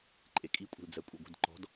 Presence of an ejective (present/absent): present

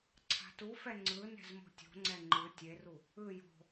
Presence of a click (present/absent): present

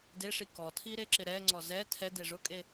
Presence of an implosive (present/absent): absent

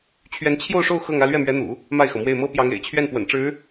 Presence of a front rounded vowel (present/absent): absent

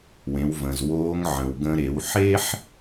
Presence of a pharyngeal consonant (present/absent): present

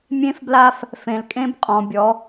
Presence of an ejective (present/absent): present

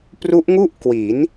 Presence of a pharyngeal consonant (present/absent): absent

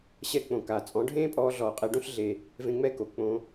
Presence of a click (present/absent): absent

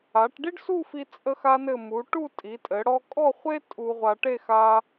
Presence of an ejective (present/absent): present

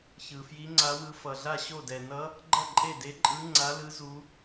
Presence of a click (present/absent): present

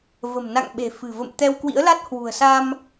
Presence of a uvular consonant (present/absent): absent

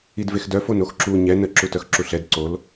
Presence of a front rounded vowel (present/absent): present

